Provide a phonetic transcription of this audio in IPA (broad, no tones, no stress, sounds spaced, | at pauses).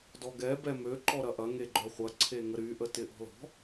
d ɔ ɡ ɛ b ɛ m ø ǃ ɔ ɾ ɐ ʔ ɐ ŋ e ɡ͡ǃ œ χʷ ɐ ǀʰ e ŋ ə ɾ y ʔ ə t ɪ ʔ ɔ̤ l ɔ̤